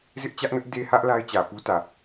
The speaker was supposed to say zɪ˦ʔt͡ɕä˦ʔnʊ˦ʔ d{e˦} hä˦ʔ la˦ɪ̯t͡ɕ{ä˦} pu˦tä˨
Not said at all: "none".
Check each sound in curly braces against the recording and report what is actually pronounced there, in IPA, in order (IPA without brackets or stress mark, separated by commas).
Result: e˦, ä˨